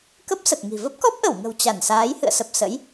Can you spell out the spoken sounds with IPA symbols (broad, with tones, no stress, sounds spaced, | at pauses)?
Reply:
k ə˦˥ p̚ s ə˨˩ t̚ ŋ i̤˨˩ v ə˦˥ p̚ k ɔ˦˥ p̚ ʔ ə˧˩ w ŋ ə̤˨˩ w t͡ɕ a˧˩ n s aː˨˦ j h ɨ̰˧˨ ə̯ s ə˨˩ p̚ s ə̰˧˥ j